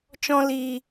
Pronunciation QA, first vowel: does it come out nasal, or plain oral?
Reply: nasal